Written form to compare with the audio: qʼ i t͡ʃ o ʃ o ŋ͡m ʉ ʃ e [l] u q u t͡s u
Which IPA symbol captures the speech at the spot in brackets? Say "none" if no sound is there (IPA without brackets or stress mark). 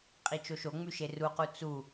r